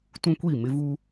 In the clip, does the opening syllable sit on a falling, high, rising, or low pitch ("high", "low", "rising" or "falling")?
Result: high